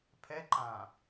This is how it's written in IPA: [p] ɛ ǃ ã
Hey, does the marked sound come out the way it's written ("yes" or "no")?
no